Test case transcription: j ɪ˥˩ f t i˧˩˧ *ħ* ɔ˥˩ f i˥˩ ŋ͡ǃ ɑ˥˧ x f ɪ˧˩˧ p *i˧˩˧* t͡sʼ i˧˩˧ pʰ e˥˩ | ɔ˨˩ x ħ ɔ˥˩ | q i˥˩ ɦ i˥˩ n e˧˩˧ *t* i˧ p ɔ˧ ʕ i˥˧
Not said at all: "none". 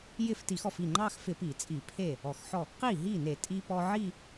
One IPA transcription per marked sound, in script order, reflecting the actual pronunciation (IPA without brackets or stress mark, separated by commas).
x, i˧˩˧, tʼ